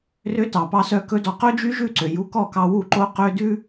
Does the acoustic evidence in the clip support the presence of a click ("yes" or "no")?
yes